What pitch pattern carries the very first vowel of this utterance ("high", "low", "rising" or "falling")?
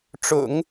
low